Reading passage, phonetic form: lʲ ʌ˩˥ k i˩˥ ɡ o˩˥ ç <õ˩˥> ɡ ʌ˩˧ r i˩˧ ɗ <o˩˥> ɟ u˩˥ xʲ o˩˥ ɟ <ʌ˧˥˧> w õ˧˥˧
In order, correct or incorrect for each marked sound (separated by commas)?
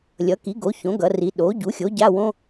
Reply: correct, correct, incorrect